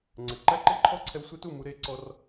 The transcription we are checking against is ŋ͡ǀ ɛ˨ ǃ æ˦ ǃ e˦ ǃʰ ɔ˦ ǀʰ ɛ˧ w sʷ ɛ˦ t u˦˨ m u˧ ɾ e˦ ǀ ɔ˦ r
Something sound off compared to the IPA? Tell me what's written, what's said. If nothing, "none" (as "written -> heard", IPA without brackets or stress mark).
none